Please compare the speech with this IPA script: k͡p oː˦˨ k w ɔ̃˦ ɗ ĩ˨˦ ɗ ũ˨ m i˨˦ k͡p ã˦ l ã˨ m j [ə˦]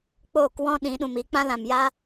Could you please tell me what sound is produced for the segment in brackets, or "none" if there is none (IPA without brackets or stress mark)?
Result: a˦